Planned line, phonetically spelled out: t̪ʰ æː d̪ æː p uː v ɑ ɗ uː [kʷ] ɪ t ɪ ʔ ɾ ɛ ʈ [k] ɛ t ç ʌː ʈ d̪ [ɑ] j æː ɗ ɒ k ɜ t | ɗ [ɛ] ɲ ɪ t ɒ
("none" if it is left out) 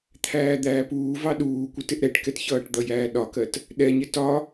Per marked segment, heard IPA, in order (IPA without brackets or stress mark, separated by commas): kʷ, k, ʌ, ɛ